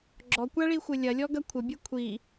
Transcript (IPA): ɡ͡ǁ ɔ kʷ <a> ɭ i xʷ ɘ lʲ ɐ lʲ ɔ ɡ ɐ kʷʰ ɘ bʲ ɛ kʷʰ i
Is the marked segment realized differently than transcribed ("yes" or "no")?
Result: no